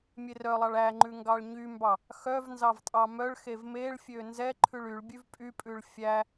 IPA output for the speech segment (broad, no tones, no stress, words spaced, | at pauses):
mʲerœlˠɑɭ æŋ͡ǃʉ ŋɡɑɭɲymbɑ | xœv nzɑvtʼɑmœɭxev meɭfʲø nzɛǃʰʉɭ yɭbʲʉv pʼypʼʉɭ fʲæ